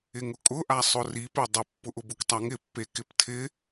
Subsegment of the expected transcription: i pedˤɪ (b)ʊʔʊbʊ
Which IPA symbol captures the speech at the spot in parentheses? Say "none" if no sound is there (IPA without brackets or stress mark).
pː